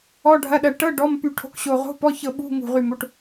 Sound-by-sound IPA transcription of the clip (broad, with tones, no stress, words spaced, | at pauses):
ɔ˧˥˧ɖʱɐ˧˥˧ɗɐ˦˨ ʈɤ˧˥˧ ɖɔ˧˥˧mpy˦˨ ʈʰo̤˧˥˧kɕo˦˨ ʁo̤˧˥˧p ɔ˧˥˧çɤ˦˨ɓṳ˧˥˧ ŋṳ˦˨ʁy˦˨mo˧˥˧ʈ